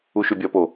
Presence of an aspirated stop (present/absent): absent